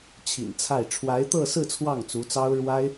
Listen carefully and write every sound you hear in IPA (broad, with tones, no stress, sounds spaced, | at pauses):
t͡ɕʰ ḭ˨˩ n t͡sʰ a˥˩ ɪ̯ ʈ͡ʂʰ w a˧˥ ɪ̯ t̪ ɤ˥˧ s ɹ̩˥˧ t͡sʰ w ɑ˥˩ ŋ t͡s u˧˥ t͡s ɑ˥ ʊ̯ ɻ w a˥ ɪ̯